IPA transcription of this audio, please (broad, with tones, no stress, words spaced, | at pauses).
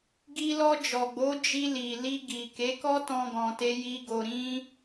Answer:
ɡi˧lɔ˧d͡ʒɔ˨ɡ͡bo˨˦ d͡ʒi˧li˨ li˧ɡi˨ ke˨˦kɔ˦tɔ̃˧ ɡɔ̃˧te˦ji˦ ɡo˧ɾĩ˦